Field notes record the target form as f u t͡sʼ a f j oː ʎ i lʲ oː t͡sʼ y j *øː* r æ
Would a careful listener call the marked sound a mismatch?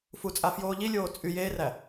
yes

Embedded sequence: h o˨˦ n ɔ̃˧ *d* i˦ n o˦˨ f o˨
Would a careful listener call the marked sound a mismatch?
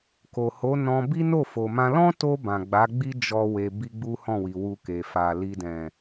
yes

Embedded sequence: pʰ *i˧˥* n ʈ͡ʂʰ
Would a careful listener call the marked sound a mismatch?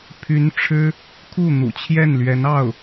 yes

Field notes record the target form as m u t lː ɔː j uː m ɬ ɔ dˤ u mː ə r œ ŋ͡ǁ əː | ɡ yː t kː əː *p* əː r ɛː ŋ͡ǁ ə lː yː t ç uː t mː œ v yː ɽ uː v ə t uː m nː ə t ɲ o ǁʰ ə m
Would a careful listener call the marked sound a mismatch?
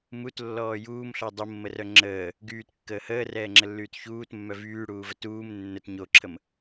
yes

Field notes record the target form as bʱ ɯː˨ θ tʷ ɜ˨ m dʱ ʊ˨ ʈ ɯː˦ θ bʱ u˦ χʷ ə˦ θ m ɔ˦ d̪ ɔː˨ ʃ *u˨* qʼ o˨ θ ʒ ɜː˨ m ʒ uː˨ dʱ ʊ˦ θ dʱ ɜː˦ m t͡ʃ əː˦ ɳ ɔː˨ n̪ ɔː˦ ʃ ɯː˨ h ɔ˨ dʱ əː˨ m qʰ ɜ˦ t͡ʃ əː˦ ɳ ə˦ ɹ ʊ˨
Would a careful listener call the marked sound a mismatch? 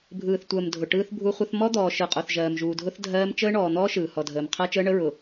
yes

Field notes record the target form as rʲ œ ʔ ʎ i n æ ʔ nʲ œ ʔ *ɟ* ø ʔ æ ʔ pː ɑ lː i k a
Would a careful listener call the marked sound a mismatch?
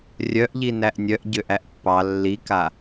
no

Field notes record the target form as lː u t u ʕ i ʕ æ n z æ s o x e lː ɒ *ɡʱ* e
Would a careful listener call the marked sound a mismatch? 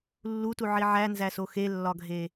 no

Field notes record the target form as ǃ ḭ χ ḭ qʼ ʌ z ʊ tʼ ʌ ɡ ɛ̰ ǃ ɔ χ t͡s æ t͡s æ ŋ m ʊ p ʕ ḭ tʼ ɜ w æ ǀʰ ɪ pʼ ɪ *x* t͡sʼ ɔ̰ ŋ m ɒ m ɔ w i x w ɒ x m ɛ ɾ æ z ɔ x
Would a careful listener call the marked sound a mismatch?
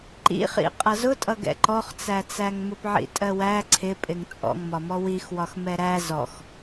yes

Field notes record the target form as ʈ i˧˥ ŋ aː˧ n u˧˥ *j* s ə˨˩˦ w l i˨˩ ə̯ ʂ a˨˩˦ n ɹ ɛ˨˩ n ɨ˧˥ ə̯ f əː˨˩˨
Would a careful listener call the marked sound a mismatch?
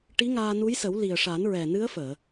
no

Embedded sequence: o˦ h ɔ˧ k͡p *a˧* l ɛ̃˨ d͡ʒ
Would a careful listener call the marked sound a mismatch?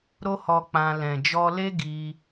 yes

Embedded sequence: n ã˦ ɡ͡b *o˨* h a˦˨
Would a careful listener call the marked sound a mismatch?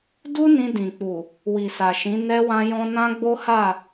yes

